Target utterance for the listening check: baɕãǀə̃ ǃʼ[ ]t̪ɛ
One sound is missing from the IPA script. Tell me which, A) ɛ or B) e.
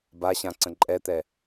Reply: A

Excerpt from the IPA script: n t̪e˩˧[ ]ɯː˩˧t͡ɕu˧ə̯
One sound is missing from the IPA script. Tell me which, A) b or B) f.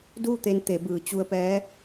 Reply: A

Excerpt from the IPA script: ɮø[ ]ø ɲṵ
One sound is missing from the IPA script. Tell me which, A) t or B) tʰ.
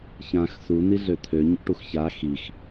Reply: B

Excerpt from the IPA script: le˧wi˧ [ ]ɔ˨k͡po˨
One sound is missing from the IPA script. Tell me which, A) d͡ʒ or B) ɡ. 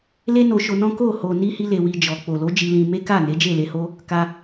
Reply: A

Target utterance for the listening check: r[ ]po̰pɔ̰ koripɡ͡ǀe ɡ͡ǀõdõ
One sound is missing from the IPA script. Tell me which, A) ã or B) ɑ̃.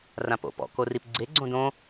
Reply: A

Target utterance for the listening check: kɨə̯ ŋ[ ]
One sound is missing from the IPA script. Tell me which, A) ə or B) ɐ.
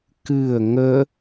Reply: A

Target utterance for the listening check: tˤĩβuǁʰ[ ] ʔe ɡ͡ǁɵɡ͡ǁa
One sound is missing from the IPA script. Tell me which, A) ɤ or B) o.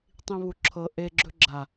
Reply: A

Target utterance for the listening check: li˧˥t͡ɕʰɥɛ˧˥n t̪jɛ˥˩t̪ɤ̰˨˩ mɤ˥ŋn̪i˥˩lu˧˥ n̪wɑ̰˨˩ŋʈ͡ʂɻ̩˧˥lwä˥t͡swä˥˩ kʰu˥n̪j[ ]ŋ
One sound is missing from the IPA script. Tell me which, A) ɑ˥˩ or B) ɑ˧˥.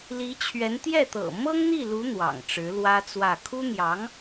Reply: B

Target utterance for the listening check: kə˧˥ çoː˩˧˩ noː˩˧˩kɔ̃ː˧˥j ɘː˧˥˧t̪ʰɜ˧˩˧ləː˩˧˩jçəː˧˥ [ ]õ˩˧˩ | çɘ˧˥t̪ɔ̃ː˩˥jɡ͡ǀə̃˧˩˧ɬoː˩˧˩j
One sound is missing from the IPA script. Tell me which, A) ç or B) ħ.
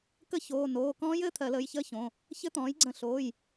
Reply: A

